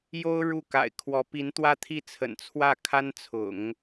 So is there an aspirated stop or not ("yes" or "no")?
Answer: yes